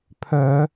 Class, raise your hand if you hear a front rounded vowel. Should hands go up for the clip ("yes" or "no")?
yes